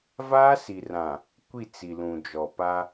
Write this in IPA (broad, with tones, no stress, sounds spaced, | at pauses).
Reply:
v aː˦ s i˨ r ã˨ | kʷ i˦˨ t͡s i˨ l ũ˨ d͡ʒ ɔ˨ p a˦